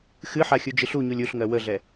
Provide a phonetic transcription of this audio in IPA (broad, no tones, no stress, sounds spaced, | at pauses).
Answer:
x ɨ ħ a xʲ u d͡ʒ ɨ ɬ u ɲ u lʲ u ɬ ŋ ɜ w ə ɮ ɛ